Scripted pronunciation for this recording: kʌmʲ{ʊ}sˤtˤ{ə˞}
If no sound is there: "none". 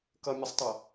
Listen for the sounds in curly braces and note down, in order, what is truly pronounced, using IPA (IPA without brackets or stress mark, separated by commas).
ʊ, ʌ